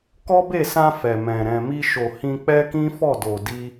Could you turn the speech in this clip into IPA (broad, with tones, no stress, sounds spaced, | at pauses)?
k ɔ˦ b e˦˨ s ã˧ f ɛ˨ m ɛ̃˨ ɾ ɛ̃˨ m i˧ ʃ o˨ h ĩ˧ k͡p ɛ˦ k ĩ˦ f ɔ˦˨ d o˨ d i˧